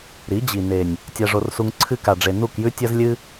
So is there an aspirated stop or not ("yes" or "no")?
yes